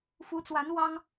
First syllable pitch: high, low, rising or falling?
rising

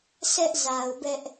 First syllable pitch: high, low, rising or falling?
high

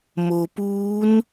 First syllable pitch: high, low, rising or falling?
low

